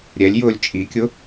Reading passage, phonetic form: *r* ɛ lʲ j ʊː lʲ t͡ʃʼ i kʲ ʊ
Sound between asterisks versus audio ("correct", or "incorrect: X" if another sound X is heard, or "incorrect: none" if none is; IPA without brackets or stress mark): incorrect: ɾʲ